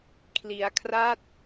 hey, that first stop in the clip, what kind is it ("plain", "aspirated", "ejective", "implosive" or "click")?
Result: aspirated